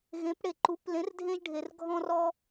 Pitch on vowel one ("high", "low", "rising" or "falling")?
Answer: rising